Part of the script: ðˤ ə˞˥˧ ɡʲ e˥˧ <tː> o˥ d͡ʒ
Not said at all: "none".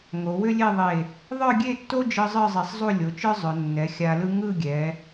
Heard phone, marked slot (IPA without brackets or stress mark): tː